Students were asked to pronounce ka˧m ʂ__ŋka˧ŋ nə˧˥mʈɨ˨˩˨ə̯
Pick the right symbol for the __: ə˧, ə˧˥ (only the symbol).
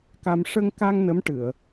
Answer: ə˧